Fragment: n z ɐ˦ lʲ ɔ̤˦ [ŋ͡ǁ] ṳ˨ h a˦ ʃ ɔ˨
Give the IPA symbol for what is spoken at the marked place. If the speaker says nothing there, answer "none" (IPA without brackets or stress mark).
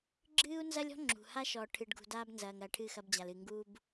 ŋ͡ǁ